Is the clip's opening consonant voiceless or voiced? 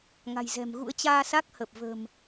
voiced